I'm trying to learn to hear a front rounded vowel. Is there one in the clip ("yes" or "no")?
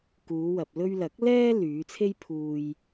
yes